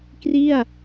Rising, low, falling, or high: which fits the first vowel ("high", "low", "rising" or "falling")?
falling